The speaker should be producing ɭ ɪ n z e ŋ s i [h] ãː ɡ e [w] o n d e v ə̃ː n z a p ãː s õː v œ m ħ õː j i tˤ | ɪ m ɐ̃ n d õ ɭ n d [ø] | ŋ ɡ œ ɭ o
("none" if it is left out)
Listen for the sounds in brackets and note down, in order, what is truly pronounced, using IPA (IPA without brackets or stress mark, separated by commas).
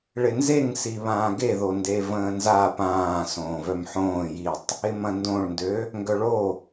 β, ð, ø